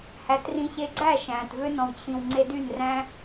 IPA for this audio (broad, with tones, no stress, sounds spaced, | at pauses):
h æ˨˦ t r ĩ˧ ɕ e˧ ɡ͡ǀ æ˦˨ ʃ æ̃ː˨ t v ø˦ n ɔ̃˨ w t͡ɕʰ ĩ˨ w ŋ͡ǀ e˧ d y˦˨ n r æ̃˦